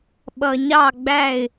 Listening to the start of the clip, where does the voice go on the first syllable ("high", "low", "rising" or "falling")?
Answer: low